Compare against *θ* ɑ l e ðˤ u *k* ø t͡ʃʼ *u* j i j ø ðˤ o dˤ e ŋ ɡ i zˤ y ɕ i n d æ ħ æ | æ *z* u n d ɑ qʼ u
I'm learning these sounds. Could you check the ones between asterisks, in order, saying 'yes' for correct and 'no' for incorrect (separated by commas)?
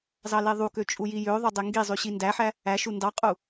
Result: no, yes, yes, no